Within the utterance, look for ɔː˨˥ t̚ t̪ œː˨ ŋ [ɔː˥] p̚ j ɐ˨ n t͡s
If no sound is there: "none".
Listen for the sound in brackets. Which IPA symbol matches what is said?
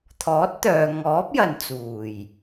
ɔː˨˥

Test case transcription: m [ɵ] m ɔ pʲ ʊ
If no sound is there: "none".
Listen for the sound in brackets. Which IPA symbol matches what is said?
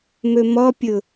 ɵ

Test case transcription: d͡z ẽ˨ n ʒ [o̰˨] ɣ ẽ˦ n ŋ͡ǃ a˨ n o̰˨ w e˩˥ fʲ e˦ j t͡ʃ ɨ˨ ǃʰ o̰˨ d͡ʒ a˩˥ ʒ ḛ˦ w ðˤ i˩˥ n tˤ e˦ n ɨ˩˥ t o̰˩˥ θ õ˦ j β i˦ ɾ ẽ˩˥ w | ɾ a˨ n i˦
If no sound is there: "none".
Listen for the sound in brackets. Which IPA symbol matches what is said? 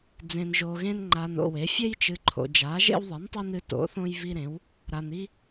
o˨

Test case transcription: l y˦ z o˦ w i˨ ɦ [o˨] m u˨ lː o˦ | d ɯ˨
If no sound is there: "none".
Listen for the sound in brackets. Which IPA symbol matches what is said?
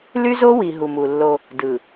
u˨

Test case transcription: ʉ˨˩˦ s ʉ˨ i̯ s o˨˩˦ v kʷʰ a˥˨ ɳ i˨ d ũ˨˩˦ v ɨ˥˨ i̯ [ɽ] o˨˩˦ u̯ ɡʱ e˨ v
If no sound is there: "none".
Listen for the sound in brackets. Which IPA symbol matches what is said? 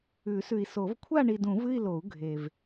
l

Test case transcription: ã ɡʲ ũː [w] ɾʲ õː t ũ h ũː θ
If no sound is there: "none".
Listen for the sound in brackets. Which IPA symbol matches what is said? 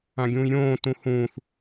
j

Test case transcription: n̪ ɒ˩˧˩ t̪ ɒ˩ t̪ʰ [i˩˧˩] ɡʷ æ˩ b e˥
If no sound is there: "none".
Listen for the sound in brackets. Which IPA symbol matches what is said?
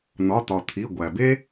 i˩˧˩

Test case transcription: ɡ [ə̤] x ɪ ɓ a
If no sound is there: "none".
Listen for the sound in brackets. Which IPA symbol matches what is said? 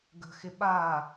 ə̤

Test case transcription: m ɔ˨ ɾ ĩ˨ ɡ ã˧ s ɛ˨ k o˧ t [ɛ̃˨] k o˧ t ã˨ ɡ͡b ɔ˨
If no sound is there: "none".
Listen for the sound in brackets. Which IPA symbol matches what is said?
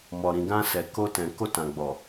ɛ̃˨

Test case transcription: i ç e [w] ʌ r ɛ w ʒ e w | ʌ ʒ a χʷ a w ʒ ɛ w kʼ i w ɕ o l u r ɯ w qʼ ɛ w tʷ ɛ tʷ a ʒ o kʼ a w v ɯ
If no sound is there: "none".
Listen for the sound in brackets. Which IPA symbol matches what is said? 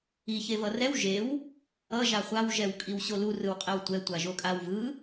v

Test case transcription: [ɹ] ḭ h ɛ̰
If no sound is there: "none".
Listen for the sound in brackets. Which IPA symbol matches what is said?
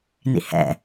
n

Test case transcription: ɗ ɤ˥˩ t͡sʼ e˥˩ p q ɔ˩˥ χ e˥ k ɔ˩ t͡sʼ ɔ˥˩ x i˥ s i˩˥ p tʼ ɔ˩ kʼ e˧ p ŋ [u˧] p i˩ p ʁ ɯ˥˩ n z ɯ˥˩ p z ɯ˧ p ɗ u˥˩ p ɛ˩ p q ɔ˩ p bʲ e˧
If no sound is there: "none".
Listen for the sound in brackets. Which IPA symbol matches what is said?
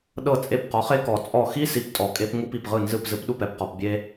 u˧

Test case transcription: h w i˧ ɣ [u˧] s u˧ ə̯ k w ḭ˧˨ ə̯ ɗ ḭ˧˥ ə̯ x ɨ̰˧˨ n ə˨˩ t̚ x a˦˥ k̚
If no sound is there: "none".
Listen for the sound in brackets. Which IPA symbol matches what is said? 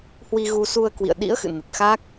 u˧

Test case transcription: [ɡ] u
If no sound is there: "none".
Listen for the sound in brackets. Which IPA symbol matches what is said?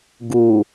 ɡ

